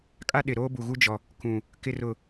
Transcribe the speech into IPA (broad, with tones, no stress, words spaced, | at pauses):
kʼa˦ɗɪ˨ ɾoː˦bu˨ɣu˦ d͡ʒɔ˨ | kũ˨ | kɪ˨rʊ˨